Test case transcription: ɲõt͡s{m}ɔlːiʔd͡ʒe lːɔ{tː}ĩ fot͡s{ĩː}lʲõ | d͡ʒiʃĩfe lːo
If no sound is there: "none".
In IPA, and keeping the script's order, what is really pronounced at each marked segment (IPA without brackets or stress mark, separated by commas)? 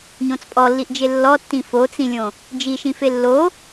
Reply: pʼ, tː, ĩ